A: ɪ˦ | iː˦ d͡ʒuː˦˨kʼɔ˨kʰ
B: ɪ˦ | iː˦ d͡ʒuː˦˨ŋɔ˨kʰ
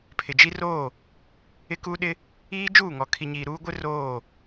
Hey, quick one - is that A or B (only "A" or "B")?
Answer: B